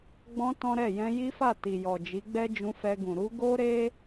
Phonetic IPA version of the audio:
ɡ͡bɔ̃˧ tɔ̃˦ɾɛ˦˨ jɛ̃˧ji˦fa˦˨ ti˨jɔ˨d͡ʒi˨˦ ɡ͡bɛ˦ d͡ʒũ˧fɛ˧ɡũ˨ ɾu˧ɡo˦ɾe˦

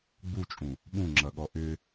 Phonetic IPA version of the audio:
ɡ͡but͡ʃʼũ | ɓũŋ͡ǁʌɠɔ ʔʏ

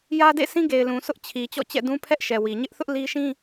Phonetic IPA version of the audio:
jä˦dḛ˦˨sĩ˦ ɡe˨ɪ̯lũ˨ sʊ˦ʔt͡ɕʰi˨ t͡ɕɔ̰˦˨t͡ɕɛ̰˦˨dũ˦pʰɛ˦ʔ ʃɛ˨wi˨ ɲɪ˦ʔθʊ˦ʔ li˦ ʃĩ˦

